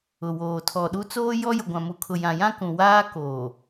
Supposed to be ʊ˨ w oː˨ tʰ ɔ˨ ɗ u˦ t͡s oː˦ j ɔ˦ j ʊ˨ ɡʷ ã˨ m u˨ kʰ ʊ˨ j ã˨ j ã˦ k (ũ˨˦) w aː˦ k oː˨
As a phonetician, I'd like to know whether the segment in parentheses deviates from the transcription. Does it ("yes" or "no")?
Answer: yes